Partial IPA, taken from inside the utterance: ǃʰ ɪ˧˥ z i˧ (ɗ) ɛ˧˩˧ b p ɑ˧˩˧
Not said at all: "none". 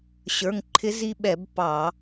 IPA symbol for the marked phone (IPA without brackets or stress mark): ɓ